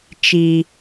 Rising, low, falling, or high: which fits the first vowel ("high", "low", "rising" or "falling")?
low